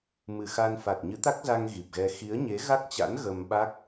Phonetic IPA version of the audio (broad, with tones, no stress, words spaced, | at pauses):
mɨ˨˩xa˧nfa˨˩t̚ ɲɨ˨˦t̪a˦˥k̚za˧ŋ ɣi˨˩p̚ɣɛ˧ xi˨˦ə̯ɲe˨˦ɣa˦˥k̚t͡ɕa̰˧˥n ɣə˧mɓa˦˥k̚